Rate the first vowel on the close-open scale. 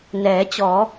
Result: mid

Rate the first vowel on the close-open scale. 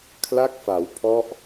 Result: open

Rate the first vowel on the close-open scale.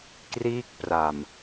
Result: close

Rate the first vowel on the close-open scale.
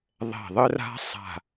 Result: mid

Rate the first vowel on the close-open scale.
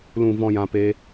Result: close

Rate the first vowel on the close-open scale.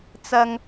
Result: open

